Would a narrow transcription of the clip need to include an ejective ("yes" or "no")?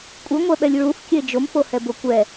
yes